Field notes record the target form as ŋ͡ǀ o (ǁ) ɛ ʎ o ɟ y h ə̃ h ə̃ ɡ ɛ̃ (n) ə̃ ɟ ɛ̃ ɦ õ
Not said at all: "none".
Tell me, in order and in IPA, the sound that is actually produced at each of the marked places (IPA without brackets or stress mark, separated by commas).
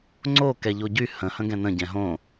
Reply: k, n